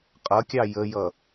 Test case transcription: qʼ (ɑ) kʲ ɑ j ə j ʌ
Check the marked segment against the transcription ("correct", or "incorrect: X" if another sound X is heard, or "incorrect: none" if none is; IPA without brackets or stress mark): incorrect: ʌ